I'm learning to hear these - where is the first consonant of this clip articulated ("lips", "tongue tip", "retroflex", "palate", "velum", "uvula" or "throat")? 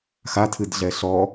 velum